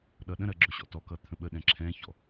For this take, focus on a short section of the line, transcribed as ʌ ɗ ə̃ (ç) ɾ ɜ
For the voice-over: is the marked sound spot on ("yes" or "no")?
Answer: no